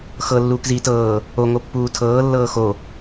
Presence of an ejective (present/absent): absent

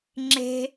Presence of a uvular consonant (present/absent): absent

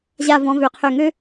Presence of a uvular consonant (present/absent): present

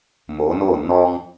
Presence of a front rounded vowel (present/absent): absent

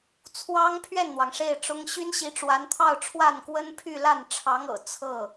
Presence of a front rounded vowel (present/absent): present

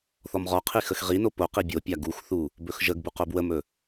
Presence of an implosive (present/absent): absent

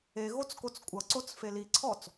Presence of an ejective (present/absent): present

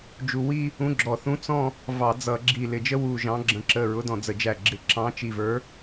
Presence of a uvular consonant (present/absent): absent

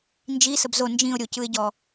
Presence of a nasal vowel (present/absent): present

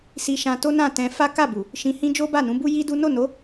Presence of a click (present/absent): absent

